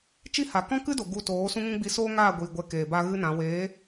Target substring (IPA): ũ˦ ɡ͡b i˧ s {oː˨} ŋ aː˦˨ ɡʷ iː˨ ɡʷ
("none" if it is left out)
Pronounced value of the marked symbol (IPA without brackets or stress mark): oː˦